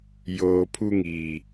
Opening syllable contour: low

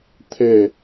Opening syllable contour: falling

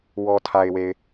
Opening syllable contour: low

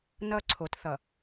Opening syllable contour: falling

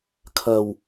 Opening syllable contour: low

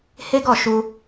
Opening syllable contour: high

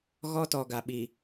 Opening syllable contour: high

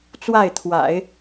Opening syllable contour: falling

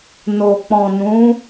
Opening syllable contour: low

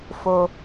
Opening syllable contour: high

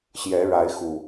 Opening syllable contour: rising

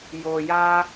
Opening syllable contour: low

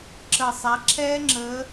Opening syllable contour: low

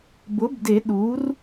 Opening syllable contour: rising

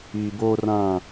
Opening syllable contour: low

